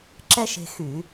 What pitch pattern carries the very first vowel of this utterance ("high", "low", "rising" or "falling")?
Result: high